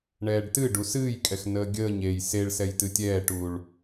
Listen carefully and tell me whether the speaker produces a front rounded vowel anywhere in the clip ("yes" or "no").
no